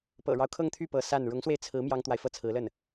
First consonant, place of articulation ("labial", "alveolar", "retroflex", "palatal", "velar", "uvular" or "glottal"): labial